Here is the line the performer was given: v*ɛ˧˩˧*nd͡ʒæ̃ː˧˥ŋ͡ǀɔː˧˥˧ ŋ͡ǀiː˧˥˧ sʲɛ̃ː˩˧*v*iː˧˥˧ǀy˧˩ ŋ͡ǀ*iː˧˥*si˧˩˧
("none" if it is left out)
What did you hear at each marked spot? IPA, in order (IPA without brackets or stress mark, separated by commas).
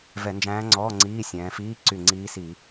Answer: ɛ˧˩˧, f, iː˧˥